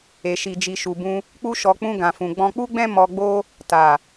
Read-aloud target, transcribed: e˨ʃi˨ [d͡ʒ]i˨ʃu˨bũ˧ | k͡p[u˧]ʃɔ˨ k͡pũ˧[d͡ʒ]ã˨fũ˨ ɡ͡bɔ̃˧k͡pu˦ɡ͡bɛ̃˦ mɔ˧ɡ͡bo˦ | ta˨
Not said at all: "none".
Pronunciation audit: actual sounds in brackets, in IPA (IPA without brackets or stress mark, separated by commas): d͡ʒ, u˧, ɡ